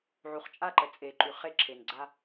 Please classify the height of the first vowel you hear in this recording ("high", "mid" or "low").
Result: high